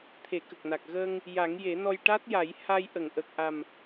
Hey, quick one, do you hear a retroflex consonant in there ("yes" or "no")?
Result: yes